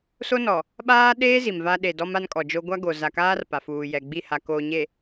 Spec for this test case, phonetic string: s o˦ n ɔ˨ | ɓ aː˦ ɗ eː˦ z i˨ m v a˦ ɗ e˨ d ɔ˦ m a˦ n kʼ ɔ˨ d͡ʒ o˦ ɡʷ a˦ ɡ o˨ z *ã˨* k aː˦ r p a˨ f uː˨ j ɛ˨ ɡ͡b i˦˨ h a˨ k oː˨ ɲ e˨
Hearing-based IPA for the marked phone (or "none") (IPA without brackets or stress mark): a˨